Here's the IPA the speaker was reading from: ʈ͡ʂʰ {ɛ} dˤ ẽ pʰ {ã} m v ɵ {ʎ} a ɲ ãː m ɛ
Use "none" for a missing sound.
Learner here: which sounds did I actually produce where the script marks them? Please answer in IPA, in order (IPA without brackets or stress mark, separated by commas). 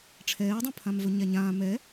ɛː, ã, ɲ